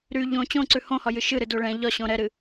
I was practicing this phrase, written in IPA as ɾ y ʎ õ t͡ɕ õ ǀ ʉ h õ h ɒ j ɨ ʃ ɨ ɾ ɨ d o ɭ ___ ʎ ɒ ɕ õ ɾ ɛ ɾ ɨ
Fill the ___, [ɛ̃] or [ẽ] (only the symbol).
ɛ̃